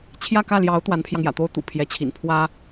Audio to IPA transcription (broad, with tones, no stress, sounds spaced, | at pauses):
t͡ɕʰ j ä˥˧ k ä˥˩ l j ɑ˧˥ ʊ̯ t̪ w a˧˥ n pʰ j ɑ˧ ŋ j ä̰˨˩ t̪ o˥ ʊ̯ t̪ ṵ˨˩ pʰ j ɛ˧˥ t͡ɕʰ ḭ˨˩ n pʰ w ä˥